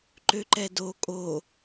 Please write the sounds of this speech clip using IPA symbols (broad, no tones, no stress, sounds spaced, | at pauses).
ǃ ø ǃ ɛ d o kʼ o